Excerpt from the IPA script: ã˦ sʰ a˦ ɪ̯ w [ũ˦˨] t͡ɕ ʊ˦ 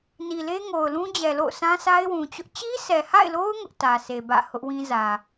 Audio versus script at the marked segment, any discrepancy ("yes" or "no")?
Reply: yes